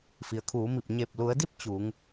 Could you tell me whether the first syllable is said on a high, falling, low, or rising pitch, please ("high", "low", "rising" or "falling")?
low